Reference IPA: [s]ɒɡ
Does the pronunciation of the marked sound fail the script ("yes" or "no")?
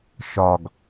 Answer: yes